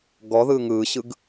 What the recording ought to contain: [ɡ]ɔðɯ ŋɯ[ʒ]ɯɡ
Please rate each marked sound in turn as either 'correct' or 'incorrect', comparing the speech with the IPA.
correct, incorrect: ɕ

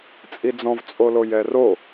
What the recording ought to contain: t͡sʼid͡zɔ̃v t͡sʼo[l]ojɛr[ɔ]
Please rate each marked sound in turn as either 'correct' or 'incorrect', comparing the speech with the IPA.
correct, incorrect: o

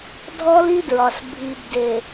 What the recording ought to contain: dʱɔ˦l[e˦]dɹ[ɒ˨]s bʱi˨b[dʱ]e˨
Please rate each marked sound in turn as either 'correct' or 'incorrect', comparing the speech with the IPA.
incorrect: i˦, correct, incorrect: d

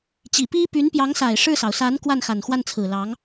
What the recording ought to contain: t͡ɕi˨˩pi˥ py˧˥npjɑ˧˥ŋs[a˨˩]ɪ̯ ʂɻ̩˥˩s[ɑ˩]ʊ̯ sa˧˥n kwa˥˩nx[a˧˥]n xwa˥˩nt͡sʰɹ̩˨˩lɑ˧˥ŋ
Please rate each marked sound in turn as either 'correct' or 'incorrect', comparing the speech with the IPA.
correct, correct, incorrect: a˨˩

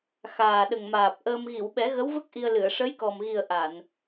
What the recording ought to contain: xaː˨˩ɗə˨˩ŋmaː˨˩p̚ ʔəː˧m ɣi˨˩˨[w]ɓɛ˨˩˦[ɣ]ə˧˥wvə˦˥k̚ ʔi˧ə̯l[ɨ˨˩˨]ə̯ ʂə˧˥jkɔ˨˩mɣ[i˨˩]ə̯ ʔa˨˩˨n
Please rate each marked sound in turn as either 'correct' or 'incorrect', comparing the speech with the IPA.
correct, correct, correct, correct

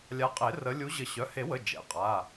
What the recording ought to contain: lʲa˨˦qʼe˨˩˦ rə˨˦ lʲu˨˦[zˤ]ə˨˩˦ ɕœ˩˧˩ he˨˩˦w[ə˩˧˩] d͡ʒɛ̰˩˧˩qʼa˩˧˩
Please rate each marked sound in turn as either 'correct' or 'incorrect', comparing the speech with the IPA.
incorrect: ʑ, correct

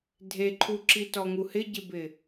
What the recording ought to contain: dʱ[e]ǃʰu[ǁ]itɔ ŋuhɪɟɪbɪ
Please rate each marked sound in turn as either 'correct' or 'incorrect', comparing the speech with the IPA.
correct, correct

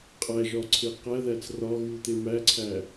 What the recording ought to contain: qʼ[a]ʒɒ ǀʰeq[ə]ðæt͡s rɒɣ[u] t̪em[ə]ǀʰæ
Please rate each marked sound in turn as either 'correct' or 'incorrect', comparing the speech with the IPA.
incorrect: æ, incorrect: æ, correct, incorrect: æ

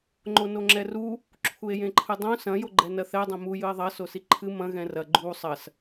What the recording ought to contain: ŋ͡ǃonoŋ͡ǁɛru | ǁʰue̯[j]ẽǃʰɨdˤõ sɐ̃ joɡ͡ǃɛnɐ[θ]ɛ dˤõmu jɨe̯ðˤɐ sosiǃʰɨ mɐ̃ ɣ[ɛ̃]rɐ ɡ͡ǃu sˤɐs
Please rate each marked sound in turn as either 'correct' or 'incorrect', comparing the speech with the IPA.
correct, correct, correct

